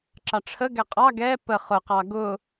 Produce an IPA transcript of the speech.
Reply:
ǁ ɑ ʈ͡ʂʰ ə ɡ ɛ qʼ ɑ ɡ ɛ p ə χ ʊ q ɑ ɡ ʊ

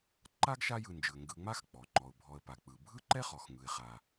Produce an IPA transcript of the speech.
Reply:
ǃ a˦ ɡ ʃ a˦ j ɯ˨ n d͡ʒ ɯ˩ ə̯ ŋ ɡ ɯ˨ ŋ͡m a˥ x k͡p ɔ˩ ŋ͡ǃ ɔ˩ ʊ̯ bʱ ɔ˨ ə̯ p a˩ k͡p ɯ˩ bʱ ɯ˥ ǃ ɛ˥ χ ɔ˩ x ŋ ɯ˨ ɪ̯ χ a˨

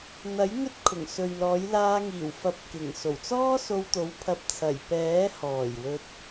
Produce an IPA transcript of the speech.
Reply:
n̪ ɐ˨˥ j ŋ ɵ˥ t̚ kʰ ʊ˨˩ ŋ s ɵ˨ ɥ l ɔː˨˥ j l aː˧ ŋ iː˨˩ w f ɐ˨˥ p̚ k ɪ˨˩ ŋ s o˨˩ w t͡s ɔː˥ s o˧ w t̪ o˨˥ w pʰ ɐ˧ p̚ t͡sʰ ɐ˨˩ j p ɛː˨˥ h ɔː˨˩ j w ɵ˧ t̚

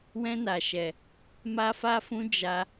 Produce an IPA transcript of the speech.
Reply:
w ɛ̃˦ n a˧ ʃ ɛ˧ | m a˦ f a˦ f ũ˦ d͡ʒ a˦

